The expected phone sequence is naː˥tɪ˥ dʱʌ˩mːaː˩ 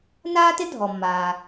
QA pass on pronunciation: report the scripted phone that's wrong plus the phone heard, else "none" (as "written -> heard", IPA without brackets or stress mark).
ʌ˩ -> ɔ˩